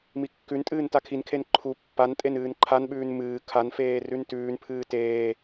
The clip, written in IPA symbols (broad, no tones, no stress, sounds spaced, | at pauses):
m i kː ʉ n tʼ ɨː n t a kʰ i n kʰ e n ǃʰ u pː a n tʼ e n ɨː n ǃʰ a n ɓ ʉː n m ɨː kʰ a n f eː r ʉ n t ʉː n pʰ ɨː t eː